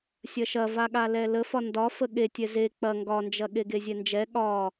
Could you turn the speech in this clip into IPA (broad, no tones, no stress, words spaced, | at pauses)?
sʲɐʃɐvaɠa lɛləfɒ ndɒ fəɠetʲɛ ze k͡pɐ ŋɡɒnd͡ʒɐ ɠeɡezʲɛnd͡ʒɛ ɠɒ